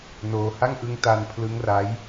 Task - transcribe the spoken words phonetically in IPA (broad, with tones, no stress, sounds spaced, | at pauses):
n oː˧ h a˥˩ ŋ ʔ ɯ˦˥ ŋ t a˧ n pʰ l ɯ˦˥ ŋ r a˦˥ j